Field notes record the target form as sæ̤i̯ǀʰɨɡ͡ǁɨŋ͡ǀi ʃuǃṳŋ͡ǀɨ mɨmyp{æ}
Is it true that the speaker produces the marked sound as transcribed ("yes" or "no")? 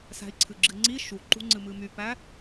yes